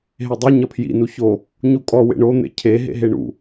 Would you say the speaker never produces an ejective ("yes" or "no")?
no